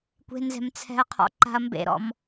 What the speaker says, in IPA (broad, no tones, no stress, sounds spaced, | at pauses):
kʷ e̤ n z ɛ̤ m t͡sʰ ɛ̤ ɐ̯ qʰ ɔ̰ ǃ a̤ ɐ̯ m b ḛ ɾ ɔ̰ m